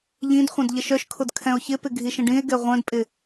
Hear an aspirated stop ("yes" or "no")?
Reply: yes